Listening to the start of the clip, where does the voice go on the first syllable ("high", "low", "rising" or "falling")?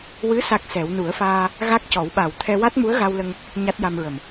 rising